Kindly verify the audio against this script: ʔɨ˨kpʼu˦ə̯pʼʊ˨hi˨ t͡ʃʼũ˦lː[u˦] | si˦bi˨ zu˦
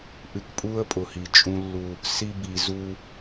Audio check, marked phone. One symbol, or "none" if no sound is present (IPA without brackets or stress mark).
u˦